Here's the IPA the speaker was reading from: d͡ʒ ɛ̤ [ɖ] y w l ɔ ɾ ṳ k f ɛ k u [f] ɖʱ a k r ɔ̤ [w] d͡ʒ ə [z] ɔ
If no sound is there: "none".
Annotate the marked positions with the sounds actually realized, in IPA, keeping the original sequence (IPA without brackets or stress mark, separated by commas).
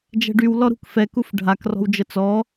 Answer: ɖ, f, w, t͡s